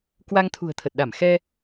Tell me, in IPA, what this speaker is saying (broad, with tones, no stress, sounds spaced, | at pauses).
k w a˧ ŋ t̪ʰ ṳ˨˩ ə̯ t̪ʰ ə˨˩ t̚ ɗ a˧˩ m x ɛ˧